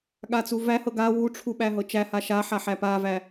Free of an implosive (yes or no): no